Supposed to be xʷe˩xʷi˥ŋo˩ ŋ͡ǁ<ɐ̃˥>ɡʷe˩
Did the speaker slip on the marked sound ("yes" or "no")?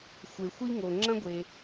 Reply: no